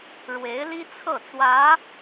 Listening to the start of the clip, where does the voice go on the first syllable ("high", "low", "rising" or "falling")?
rising